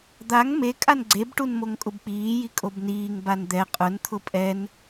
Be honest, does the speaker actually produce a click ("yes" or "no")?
yes